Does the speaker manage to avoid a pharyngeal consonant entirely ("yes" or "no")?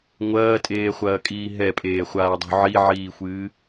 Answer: no